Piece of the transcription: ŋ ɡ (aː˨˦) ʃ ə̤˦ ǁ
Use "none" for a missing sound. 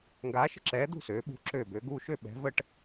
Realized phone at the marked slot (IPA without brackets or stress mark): aː˨˦